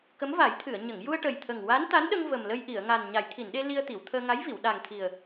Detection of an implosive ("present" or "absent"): present